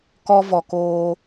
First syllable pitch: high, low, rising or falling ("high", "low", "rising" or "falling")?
high